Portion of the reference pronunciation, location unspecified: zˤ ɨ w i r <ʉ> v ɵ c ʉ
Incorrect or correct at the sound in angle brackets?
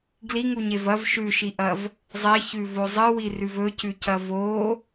correct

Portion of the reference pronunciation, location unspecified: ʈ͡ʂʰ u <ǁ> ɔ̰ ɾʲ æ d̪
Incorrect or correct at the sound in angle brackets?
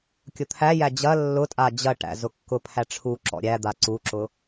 correct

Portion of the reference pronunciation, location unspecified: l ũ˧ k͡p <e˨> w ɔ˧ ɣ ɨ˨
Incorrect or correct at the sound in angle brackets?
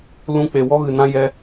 correct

